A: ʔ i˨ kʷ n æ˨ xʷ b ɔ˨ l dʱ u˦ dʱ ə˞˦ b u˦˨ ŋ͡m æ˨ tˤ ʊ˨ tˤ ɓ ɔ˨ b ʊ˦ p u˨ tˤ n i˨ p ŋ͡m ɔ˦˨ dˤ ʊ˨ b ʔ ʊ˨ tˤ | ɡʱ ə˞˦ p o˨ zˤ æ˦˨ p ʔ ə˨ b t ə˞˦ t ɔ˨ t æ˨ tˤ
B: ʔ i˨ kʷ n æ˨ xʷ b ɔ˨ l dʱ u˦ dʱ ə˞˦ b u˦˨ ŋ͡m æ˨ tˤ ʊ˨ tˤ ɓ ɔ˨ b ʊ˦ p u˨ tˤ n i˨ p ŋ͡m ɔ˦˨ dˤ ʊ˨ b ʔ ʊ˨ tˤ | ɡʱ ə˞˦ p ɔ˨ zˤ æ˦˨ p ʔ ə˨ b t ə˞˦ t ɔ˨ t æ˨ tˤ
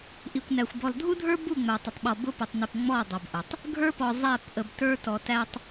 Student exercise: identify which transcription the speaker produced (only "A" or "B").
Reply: B